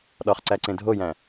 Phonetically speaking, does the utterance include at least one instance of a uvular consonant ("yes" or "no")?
yes